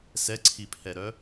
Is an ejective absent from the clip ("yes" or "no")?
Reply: yes